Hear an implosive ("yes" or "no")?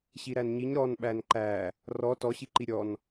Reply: yes